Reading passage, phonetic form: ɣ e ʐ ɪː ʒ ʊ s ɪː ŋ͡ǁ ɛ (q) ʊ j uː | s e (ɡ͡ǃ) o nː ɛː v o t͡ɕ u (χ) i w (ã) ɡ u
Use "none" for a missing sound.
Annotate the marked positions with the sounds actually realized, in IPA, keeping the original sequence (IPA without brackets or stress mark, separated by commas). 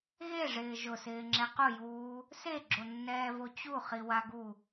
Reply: q, ɡ͡ǁ, χ, a